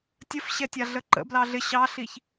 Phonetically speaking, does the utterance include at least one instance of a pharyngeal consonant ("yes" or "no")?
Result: no